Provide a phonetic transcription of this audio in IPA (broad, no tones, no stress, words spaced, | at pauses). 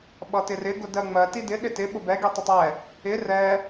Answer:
ɓʌtɪrɪ ɡʊdɜŋ͡mɜ tidɪ ɗɪtɪ ɓʊbɛ ɡitˤɪtˤɛ | ɪ rɛ